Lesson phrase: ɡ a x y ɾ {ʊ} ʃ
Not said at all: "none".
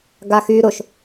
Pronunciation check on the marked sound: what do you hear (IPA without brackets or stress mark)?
ʊ